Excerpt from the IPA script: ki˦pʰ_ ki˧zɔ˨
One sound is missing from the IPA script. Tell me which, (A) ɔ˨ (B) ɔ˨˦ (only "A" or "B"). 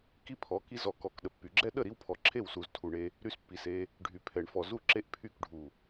B